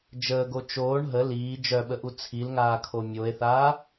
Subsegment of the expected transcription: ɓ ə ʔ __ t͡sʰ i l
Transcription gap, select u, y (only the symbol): u